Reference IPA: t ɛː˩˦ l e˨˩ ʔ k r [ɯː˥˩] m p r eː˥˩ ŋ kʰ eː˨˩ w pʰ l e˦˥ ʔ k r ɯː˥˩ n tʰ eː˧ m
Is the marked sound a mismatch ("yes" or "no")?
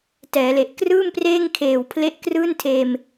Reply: no